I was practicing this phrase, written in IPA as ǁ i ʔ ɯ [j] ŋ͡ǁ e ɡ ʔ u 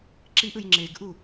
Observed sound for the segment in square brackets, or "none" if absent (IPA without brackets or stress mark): j